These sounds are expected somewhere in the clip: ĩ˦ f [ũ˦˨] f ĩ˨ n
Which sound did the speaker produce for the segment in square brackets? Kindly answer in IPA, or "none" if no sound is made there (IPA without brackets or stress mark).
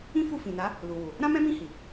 u˦˨